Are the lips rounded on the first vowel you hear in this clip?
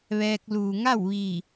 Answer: no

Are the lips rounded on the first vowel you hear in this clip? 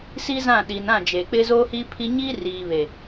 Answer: no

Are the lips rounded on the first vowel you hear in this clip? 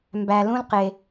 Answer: no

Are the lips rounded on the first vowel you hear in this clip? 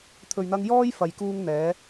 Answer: yes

